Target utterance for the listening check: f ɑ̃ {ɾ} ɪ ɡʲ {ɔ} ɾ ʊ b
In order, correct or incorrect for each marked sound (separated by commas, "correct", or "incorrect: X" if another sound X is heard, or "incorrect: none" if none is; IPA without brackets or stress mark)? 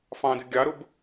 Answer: incorrect: d, incorrect: ɑ